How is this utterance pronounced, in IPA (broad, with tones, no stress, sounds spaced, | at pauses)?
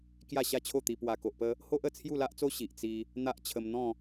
k j a˥˧ ɕ a˥˧ t͡ɕʰ o˥˧ t̪ i˧ p w a˨˩ k o˨ ʔ p ə˧ | h o˦ ʔ ə˨˩ t͡sʰ j u˥˧ l a˦ ʔ t͡s o˦ ɕ i˨ ʔ t͡s i˧ | n̪ a˦ ʔ t͡ɕʰ ə˧ m n̪ ɔ̃˥˧